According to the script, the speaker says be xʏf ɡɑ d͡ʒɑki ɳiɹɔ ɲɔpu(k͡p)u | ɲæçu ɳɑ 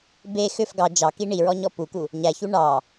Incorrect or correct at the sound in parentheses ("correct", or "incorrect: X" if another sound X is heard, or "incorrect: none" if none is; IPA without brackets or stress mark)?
incorrect: k